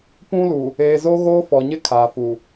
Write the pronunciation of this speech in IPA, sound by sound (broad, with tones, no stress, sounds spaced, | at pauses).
p ũ˦ l u˨ | eː˨ z o˦ ɣ oː˦ f ɔ˨ ɲ ɪ˦ kʰ aː˨ f u˨